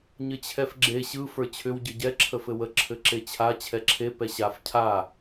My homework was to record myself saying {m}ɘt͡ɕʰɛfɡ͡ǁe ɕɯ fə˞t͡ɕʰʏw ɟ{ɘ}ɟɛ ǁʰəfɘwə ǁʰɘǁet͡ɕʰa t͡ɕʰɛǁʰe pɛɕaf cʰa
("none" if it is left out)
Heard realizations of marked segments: ɲ, ɘ

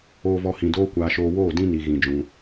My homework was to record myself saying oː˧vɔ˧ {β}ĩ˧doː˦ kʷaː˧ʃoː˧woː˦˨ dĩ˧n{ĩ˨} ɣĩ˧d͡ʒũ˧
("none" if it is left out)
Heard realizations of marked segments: h, i˨

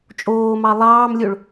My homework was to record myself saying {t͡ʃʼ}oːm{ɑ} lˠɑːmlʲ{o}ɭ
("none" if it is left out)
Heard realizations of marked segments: t͡ʃʼ, ɑ, o

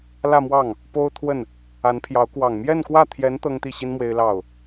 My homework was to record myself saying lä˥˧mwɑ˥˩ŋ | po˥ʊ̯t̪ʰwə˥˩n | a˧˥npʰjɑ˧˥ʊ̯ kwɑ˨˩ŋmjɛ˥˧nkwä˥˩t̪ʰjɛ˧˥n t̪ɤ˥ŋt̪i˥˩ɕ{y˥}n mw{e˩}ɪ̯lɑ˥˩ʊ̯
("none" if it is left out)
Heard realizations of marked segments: i˥, e˥

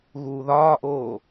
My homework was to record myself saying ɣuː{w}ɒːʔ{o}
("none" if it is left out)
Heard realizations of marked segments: ð, oː

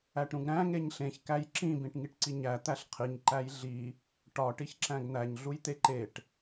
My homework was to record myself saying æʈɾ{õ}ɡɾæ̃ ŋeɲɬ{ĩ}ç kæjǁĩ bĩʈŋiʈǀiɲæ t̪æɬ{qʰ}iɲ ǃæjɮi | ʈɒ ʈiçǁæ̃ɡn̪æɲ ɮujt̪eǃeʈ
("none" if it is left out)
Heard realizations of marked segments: ũ, ẽ, qʰ

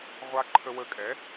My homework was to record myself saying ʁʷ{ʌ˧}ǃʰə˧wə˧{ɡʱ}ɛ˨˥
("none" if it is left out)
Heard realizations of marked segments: a˧, kʼ

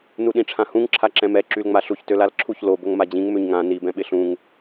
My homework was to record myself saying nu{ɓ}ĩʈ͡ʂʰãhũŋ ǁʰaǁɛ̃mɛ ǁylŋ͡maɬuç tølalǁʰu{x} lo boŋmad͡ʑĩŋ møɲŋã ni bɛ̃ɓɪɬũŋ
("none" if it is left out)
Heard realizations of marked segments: ɗ, ç

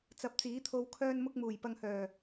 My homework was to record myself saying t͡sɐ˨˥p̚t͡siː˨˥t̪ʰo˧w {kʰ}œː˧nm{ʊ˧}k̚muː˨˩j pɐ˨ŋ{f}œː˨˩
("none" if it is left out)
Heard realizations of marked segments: kʰ, ʊ˧, h

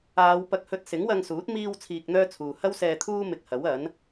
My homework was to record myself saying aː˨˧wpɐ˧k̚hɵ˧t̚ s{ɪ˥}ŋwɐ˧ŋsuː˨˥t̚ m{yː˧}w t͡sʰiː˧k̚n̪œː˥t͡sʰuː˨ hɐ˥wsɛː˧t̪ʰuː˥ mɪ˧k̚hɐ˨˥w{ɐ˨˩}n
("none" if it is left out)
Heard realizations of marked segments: ɪ˨˥, iː˧, ɐ˨˥

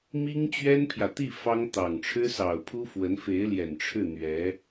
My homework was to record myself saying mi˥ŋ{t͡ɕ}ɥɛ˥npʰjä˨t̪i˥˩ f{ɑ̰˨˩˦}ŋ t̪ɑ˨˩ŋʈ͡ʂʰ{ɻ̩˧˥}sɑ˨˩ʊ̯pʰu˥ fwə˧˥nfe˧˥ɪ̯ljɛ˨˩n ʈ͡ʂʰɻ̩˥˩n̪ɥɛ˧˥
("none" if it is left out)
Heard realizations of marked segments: t͡ɕ, ɑ˥, ɻ̩˥

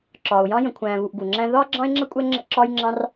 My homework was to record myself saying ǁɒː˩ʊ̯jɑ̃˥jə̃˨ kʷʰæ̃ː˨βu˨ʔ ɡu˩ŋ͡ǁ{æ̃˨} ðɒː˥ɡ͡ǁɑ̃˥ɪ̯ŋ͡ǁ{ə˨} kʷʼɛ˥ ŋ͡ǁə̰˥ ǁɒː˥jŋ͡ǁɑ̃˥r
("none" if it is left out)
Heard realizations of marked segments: æ̃˥, ə˥

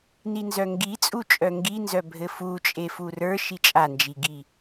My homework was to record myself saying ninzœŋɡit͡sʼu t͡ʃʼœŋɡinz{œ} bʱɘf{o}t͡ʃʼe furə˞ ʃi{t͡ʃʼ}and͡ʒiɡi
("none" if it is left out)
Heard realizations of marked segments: œ, u, t͡ʃʼ

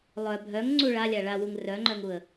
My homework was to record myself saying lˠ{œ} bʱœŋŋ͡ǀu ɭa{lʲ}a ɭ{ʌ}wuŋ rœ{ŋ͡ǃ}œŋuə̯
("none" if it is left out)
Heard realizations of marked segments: œ, lʲ, a, ŋ͡ǃ

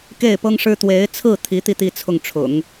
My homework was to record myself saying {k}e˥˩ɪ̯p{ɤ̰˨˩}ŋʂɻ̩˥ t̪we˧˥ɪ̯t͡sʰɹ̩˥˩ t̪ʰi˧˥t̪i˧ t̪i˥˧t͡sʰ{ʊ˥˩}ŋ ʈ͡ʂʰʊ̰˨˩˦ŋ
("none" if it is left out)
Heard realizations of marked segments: k, ɤ˥, ʊ˥˩

